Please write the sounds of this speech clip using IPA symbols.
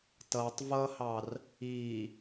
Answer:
t ʌ tˤ v ʌ h ɑ r | i

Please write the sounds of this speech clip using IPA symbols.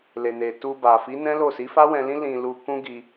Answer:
l e˨ n e˨ t u˧ b a˨ f i˨˦ n ɛ̃˦ l o˦˨ s i˨˦ f a˦ w ɛ̃˧ l ĩ˦ l ĩ˧ l u˧ k ũ˦ ɡ i˧

